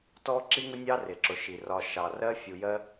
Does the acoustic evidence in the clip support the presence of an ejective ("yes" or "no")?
no